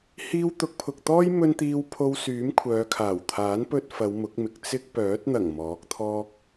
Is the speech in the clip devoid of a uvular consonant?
yes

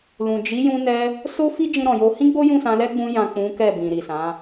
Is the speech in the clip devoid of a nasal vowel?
no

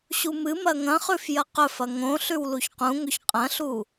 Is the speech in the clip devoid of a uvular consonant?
no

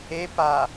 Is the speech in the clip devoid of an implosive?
yes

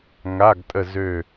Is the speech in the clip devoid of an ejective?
no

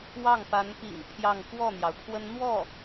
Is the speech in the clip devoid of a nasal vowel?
yes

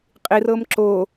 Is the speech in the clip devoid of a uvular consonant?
no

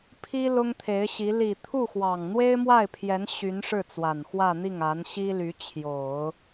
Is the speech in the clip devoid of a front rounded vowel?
no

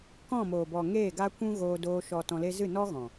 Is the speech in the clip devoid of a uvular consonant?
yes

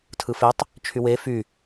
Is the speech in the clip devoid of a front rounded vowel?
no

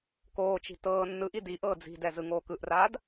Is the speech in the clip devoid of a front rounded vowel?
yes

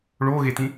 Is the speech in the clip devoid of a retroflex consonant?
no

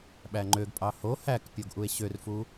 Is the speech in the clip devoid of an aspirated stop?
yes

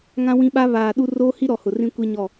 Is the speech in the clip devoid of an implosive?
no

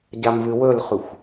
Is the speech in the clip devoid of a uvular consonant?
no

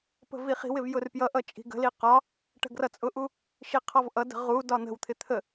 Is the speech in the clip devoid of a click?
yes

